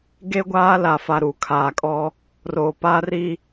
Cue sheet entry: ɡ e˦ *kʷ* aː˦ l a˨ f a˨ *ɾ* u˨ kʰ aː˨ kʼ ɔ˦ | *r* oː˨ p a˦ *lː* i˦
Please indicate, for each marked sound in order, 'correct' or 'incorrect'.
incorrect: ɡʷ, correct, correct, incorrect: r

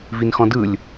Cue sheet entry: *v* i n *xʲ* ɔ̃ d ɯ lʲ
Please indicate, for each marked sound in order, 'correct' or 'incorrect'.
correct, incorrect: x

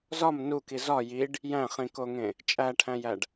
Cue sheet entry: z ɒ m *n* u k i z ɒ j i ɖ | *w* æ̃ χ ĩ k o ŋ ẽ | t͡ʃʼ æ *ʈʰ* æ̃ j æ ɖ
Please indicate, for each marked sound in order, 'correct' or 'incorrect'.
correct, incorrect: j, correct

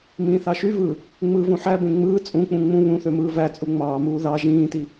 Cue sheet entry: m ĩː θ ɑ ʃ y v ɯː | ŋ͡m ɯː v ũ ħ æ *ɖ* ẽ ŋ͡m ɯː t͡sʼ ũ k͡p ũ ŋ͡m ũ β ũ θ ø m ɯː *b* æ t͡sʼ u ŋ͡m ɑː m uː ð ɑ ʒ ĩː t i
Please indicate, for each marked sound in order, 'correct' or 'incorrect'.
incorrect: b, incorrect: v

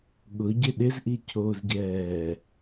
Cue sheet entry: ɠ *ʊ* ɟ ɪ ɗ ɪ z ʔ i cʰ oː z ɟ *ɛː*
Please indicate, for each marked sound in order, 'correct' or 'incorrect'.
correct, correct

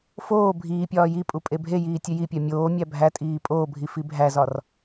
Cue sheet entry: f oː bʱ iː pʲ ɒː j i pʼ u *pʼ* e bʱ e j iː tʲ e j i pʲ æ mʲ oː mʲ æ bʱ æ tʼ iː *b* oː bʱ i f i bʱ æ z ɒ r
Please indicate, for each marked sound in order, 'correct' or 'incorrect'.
correct, incorrect: pʼ

